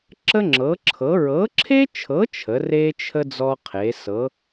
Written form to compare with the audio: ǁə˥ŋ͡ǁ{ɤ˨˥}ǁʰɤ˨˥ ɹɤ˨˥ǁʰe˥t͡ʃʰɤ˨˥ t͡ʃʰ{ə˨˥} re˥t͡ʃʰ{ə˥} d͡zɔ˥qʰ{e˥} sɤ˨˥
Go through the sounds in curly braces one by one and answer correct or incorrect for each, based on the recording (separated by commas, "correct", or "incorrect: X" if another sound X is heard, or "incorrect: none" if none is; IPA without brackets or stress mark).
correct, correct, correct, incorrect: e˨˥